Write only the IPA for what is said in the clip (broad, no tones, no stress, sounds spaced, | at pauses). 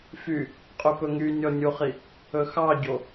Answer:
f y | qʼ ɵ p ɵ ŋ y nʲ ɔ nʲ u χ i | ɵ x ɑ ɟ o